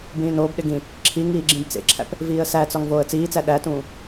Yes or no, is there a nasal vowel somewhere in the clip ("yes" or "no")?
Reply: yes